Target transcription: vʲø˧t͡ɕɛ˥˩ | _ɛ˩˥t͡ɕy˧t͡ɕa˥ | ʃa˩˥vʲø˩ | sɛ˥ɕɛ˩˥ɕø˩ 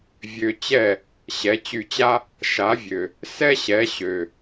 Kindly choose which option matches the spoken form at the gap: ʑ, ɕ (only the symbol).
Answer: ɕ